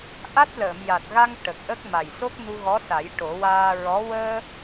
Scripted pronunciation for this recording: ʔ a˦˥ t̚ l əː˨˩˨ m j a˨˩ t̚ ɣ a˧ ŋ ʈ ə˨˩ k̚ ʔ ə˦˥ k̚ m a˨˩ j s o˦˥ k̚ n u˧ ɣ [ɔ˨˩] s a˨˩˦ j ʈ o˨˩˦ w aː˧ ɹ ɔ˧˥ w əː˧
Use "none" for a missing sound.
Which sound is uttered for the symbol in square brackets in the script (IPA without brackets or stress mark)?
ɔ˧˥